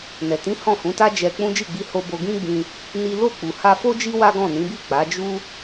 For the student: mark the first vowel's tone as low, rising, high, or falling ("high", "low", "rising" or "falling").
low